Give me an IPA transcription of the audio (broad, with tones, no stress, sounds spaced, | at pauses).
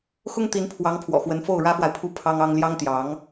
x ʊ˥ ŋ t̪ i˧˥ n pʰ w ɑ˧˥ ŋ pʰ w ɔ̰˨˩ x w ə˧˥ n f o˥˩ ʊ̯ ɻ ä˥ f w a˨ ɪ̯ pʰ u˥˩ pʰ ɑ˥ ŋ ɑ˥ ŋ l j ɑ˥ ŋ t̪ j ɑ˧˥ ŋ